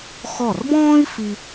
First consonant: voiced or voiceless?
voiceless